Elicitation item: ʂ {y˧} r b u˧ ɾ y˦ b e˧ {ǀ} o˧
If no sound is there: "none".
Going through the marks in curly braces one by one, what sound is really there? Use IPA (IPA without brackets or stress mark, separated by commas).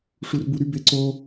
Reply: u˧, ǀ